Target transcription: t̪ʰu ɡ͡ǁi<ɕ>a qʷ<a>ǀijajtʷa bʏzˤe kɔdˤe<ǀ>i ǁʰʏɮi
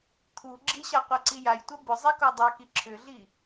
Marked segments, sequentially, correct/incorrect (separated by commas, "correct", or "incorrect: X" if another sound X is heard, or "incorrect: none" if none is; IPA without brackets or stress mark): correct, correct, incorrect: k